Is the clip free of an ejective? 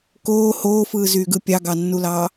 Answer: yes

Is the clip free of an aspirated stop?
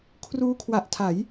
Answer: no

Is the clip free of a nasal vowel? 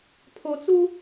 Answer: yes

